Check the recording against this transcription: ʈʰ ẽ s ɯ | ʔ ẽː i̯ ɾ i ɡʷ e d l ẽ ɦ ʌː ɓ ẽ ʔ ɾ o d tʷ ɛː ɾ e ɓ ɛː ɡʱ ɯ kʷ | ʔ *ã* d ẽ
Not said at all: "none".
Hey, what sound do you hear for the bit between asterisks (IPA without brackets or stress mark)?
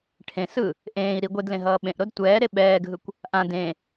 ã